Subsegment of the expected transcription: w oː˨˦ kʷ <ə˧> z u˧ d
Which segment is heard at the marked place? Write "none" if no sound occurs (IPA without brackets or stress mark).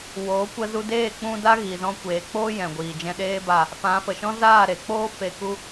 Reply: ə˧